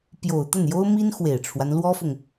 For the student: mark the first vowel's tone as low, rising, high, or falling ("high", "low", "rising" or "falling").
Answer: low